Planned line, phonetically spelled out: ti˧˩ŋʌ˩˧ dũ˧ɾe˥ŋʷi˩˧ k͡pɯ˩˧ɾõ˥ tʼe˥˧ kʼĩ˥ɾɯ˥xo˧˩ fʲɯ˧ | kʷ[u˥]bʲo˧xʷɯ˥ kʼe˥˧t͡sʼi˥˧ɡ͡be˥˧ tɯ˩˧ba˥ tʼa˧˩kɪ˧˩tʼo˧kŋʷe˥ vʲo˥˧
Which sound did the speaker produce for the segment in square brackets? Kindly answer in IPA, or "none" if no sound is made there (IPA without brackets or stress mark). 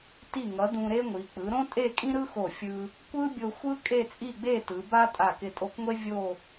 ɯ˥